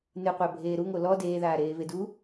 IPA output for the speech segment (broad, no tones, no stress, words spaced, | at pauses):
nɨqʷæ bʱeːɾuŋo lɔ deːðaː ɾeːvedu